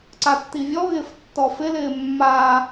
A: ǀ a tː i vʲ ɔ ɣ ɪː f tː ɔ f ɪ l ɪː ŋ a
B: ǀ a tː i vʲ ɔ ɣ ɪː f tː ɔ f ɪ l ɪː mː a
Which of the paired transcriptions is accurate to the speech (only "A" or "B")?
B